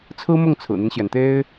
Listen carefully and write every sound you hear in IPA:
t͡sʰ ɹ̩˥ m ʊ˥˩ ŋ t͡sʰ ɹ̩˨˩ n̪ i˦ n ɕ j ɛ˩ n t̪ e˥ ɪ̯

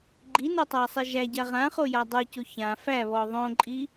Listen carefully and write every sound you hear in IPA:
ɡ͡ǃ i n o tˤ a sˤ i ʒ æ ɟ a ʁ ã χ o j a dˤ o c o ç ã f æ β ɔ ðˤ õ ǃʼ i

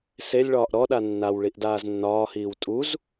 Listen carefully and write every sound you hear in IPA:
s e lʲ ɭ ɒː ʔ ɾ ɔ ɗ a nː a w ɭ i ʔ d aː z nː ɒː h iː w tʼ u z

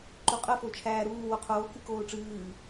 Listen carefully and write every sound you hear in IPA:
ǃ o qʼ ə f o t͡ʃʰ æː ɾ uː w o qʰ oː k ɨ k oː ʈ͡ʂ ɨː

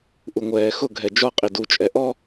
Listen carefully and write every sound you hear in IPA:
ʔ u ŋʷ ɛː x ʊ ɡʱ ɛ d͡ʒ ɒ qʼ i d u t͡ʃʼ ɛ ʔ ɔ

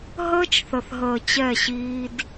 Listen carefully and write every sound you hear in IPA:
ɦ əː˦ t͡ʃ θ ə˨ θ ɦ əː˨ t͡ɕ ɛ˦˨ ɕ iː˦ d

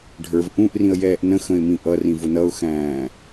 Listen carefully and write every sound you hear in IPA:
ɖʱ ə˞ v ʔ ũ ʔ r ĩ ə̯ j ɛː ʔ n ə̃ x ə̃ ɪ̯ m ĩ ʔ ʌ r ĩ v ʊ n ʌ ʊ̯ x æ̃ː

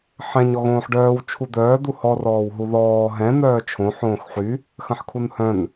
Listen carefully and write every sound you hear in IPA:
ħ ɛ̃ ɲ ɔ ɣ õː ħ ɖ œː w t͡ʃʰ u d̪ œː d̪ u h ɔ r ɔː w ɦ u ð ɔː ɦ ɛ̃ n̪ œː t͡ʃʰ õ ħ õː x ħ y | x ɐ̃ ħ kʰ u n h œ̃ n

